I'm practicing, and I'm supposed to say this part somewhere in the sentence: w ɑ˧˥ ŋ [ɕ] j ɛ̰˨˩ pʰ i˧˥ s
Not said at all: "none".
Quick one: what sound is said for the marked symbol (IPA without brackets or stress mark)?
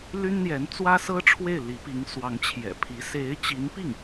t͡ɕʰ